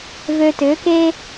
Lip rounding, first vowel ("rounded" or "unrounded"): rounded